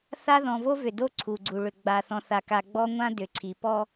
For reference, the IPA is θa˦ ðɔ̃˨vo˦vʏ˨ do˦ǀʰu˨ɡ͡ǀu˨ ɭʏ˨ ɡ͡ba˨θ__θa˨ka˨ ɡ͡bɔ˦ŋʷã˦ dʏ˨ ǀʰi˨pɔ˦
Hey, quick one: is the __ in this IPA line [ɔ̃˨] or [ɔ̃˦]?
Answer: ɔ̃˨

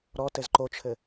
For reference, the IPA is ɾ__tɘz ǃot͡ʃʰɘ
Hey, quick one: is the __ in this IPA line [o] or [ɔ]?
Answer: ɔ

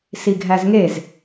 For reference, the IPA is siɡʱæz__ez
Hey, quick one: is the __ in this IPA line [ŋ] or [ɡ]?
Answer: ŋ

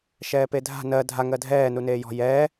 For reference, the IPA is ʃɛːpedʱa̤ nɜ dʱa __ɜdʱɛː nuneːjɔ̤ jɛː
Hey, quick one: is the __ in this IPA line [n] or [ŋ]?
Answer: ŋ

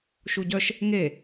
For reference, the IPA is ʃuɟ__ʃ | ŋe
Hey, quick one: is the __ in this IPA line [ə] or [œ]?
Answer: œ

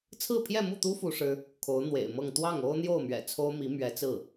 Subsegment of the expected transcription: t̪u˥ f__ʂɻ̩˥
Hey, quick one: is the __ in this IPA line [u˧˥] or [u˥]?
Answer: u˥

